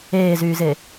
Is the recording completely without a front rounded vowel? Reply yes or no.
no